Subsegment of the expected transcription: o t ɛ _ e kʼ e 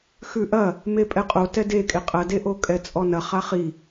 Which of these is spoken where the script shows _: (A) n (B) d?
B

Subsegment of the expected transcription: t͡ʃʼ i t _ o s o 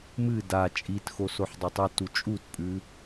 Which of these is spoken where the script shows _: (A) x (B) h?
A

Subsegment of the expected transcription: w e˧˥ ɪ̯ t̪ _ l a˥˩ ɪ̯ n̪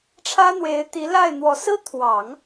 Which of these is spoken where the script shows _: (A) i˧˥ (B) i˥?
A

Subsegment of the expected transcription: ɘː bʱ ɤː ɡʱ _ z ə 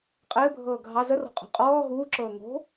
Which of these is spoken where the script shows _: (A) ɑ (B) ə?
A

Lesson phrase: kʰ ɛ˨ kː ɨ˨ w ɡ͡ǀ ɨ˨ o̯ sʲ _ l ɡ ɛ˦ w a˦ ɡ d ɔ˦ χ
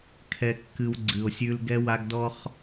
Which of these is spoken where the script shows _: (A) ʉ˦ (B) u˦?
A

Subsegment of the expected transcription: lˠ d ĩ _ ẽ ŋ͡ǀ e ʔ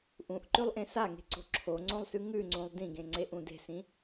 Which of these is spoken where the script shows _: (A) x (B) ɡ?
B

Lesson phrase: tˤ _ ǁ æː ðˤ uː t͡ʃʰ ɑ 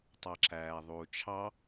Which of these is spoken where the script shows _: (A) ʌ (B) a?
B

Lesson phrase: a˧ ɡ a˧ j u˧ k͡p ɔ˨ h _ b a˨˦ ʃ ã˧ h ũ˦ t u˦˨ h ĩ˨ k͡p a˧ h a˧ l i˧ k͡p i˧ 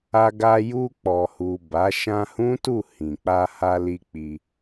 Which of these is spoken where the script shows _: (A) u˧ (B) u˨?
B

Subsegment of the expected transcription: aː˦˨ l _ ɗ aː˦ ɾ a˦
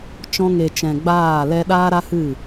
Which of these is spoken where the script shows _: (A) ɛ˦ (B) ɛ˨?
A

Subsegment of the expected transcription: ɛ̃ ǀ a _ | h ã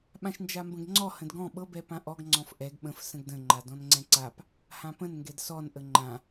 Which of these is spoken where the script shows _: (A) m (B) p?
B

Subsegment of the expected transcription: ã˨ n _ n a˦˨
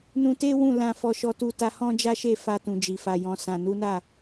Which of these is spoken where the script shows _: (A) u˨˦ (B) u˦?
A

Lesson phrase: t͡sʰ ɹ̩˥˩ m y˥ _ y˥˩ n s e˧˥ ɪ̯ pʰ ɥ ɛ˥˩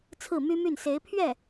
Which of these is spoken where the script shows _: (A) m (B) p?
A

